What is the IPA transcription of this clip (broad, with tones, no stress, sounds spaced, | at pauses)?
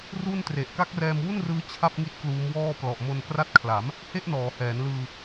r u˥˩ n t r e˨˩ ʔ k a˦˥ k̚ r ɛː˧ m w u˥˩ n r ɯː˦˥ t͡ɕʰ a˥˩ p̚ ŋ i˦˥ t̚ k l uː˦˥ m w ɔː˥˩ p l ɔ˨˩ ʔ m o˧ n k r a˦˥ t̚ kʰ l a˩˦ m | h e˥˩ ʔ n ɔː˩˦ h ɛː˩˦ n l ɯː˧